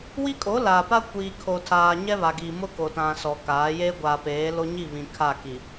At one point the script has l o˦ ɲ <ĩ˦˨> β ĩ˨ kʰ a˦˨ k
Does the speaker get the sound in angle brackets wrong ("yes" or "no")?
yes